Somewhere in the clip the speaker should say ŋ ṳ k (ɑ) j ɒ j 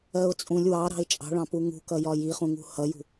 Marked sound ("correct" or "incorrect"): incorrect